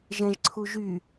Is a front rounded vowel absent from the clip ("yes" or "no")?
no